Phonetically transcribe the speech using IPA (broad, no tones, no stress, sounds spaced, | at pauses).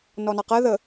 n ɔ n ɑ q ɜ ð ə